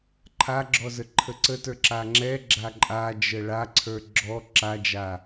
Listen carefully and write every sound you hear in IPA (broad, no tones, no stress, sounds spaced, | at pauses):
ǃʰ a ɡ͡ǁ ɔ z ə ǃʰ ə ǀ ə t ə˞ ǁ a ŋ͡ǁ ɛ ɡ͡ǁ a ǃʼ a d͡ʒ ə ɭ a ǀʰ ə˞ ɡ͡ǁ ɔ ǁ a d͡ʒ a